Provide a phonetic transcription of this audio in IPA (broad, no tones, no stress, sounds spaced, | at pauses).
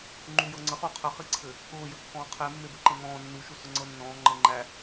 ŋ͡ǃ u j ɤ ŋ͡ǀ ə χ u qʰ ə χ i ǀʰ ɘ | ʊː j ə kː ɔ̃ː qʰ e mː e b ɘ ǃ ẽ ŋ ɔ̃ː nː u ʃ u s ʊ ŋ͡ǀ ɤ nː ɔ̃ː ŋ͡ǃ ɤ ŋ͡ǃ æ